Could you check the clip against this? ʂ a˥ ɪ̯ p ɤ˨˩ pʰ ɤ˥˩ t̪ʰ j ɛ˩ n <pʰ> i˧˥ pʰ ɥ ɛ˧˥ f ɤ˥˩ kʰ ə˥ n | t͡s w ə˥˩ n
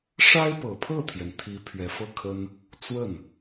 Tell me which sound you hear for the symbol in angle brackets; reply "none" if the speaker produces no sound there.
t̪ʰ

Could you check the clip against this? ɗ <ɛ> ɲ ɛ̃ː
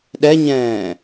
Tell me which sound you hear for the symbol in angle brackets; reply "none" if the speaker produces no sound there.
ɛ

